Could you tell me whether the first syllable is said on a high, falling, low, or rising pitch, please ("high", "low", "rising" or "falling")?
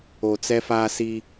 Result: low